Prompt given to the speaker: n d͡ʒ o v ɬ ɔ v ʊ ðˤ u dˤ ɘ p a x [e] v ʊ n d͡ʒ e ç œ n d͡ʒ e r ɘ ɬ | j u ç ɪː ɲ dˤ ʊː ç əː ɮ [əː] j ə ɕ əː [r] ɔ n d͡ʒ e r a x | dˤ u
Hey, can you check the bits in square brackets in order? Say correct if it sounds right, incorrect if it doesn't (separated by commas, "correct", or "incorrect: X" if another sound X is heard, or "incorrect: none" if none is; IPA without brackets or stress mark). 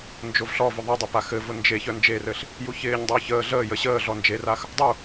incorrect: ɘ, correct, incorrect: ɮ